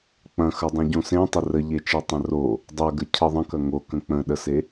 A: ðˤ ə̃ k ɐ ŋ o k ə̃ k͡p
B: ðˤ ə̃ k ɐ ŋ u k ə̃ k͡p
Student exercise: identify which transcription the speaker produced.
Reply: A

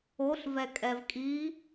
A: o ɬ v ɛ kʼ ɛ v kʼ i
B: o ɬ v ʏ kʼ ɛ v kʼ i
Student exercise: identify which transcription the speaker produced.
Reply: A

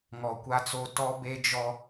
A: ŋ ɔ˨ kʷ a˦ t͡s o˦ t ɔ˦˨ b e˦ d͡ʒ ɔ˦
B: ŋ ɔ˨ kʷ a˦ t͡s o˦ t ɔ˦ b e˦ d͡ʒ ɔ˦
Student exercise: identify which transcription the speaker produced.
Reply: B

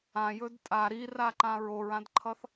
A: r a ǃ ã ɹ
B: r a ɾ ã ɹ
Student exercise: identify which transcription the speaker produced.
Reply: A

